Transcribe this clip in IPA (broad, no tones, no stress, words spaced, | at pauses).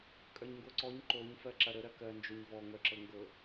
kʼœɲŋɡoǀɔɲ ǃoɲ fɜǁɐɾə ɾɜkɜ nd͡ʒoɲvɔ ŋœǁɤŋɡɤ